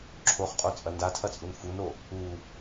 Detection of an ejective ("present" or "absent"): present